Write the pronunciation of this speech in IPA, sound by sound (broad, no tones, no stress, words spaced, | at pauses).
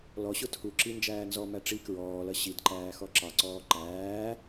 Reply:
lɔɕʊ tʰuǁi nd͡ʒæːnzɔmæ ʈ͡ʂi kɹɔːlʌ ɕidǃæː xɔǁɑǀɔː ǃæː